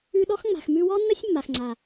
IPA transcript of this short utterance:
ʉ˧ ɗ ɔ˦ x ŋ͡m a̤˨ x m ʉ˧ w ɔ˦ nː ə˦ sʲ mː a˨ x ŋ͡ǀ a˨

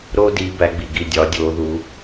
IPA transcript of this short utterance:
ɾ oː˥ d iː˨˦ b æ˨˦ ɡ͡b i˨ ɡ i˥˨ dʲ ɒː˨˦ dʲ oː˨˦ ð u˨˦

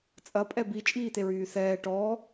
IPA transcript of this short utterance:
t͡sʼ ɐ pʼ ɛ b i t͡ʃʼ iː t̪ e ɹ yː θ ɛː ʈ ɔː

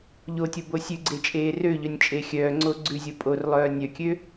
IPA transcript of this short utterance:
ʎ o tʲ o b o sʲ ʉ ɡ͡ǀ e t͡ʃʼ eː r ø ʎ œ nʲ t͡ʃʼ e xʲ œː ŋ͡ǀ o ɡ͡ǀ ʉ zʲ o pʼ o r lˠ œː nʲ œ kʲ ø

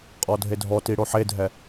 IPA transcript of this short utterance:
qʼ ɔ dʱ e dʱ ɔ t i ɽ o ħ e dʱ ɛ

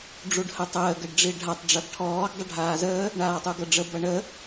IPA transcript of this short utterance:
ɖ͡ʐ u ɖ h ə tˤ əː ɡ ə ɖ ɖ͡ʐ i ɖʱ a tˤ ɖ͡ʐ ʌ ɡ ʈʰ ɔː ɡ dˤ ə ɖʱ aː z əː | ɳ aː tˤ u ɡ ʌ ɖ͡ʐ ə b ʌ ɳ ə

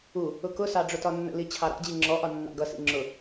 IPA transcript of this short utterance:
u | ʊ k ʊ s ɑ ɖ͡ʐ ʊ t ɒ nː ə̰ l i t͡ɕʰ ɑ ɾ ɑ̰ d͡ʑ i ŋ͡ǁ ɔ ʔ ɒ nː ɑ̰ ɡ ʌ s ḭ ŋ͡ǁ ʊ

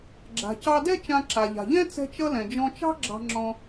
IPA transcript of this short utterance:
ɡ͡ǁ a̤˩ c ɑ˧ d ɛ˥ t͡ʃ ã˧ ǁ a˩ ʎ a̤˩ ʎ ɛ̃˥ t͡s ɛ̤˥ t͡ʃ ʌ˥ l ɛ̃˩ d͡ʒ ɔ̃˧ t͡ʃ ɑ̤˥ ɡ͡ǁ ɑ̤˧ ŋ͡ǁ ɔ̃˧

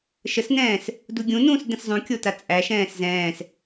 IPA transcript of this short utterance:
ʃ ə s n ɛ̃ː s | d u ɡʲ ũ n ũː s d ɛ̃ s zˤ ũ kʲ o t a t͡sʼ æ ʃ ɛ̃ː s z ɛ̃ː s

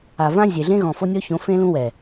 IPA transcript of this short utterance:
a˨ v ã˦ zʲ e˨ ɮ ẽ˦ ɣ ɔ̃˨ f o˦ nʲ ɔ˦ ç õ˨˦ f ẽ˦ l ũ˦ w ɛ˨

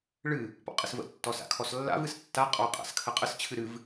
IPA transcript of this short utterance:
ɭ ɨ | p ɔ̰ qʼ ɘ s v ə̰ tː ɔ s a̰ kʰ ɔ s lː a̰ v ɨ s tː a qʼ ɔ qʼ a̰ s kʰ ə qʼ ə s t͡ɕʰ ɨ ɾ ɨ v

